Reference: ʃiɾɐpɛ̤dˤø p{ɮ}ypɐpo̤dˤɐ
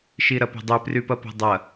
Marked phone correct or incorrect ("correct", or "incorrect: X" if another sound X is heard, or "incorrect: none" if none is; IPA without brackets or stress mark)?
incorrect: r